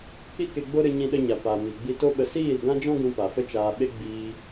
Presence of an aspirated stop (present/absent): absent